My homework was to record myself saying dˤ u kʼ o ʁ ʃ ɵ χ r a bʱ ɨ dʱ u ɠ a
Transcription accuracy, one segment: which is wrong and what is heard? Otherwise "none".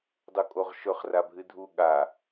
none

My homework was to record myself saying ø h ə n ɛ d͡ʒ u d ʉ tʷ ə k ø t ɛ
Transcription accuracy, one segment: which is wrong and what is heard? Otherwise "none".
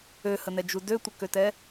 ʉ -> ø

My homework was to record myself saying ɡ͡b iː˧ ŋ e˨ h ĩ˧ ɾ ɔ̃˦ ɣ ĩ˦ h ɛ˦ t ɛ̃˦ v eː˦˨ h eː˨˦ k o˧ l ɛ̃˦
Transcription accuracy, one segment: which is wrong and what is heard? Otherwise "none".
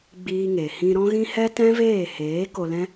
none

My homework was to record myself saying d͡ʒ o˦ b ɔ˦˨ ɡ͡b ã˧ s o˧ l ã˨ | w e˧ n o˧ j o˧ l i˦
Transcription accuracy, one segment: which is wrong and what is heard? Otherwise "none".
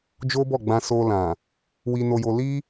e˧ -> i˧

